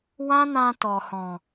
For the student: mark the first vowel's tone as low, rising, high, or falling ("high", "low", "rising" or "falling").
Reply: high